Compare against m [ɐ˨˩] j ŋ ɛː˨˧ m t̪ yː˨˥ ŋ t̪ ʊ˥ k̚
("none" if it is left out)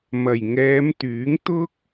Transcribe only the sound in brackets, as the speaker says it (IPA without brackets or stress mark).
ɐ˨˩